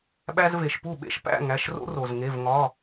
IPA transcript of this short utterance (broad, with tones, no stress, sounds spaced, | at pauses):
ɓ æ˦ z v e˩ ʃ p u˥˩ ɓ ḛ˥˩ ʃ p æ̰˥˩ ŋ æ˩˧˩ ʃ r o̰˦ r o˩ z ŋ e˩˧˩ v ŋ ɒ˩˧˩